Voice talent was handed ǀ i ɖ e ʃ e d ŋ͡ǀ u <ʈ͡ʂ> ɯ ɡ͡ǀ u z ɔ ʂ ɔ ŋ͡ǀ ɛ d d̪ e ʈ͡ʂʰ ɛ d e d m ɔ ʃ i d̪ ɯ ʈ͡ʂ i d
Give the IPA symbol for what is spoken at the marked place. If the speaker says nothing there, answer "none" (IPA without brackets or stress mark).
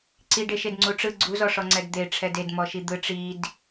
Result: ʈ͡ʂ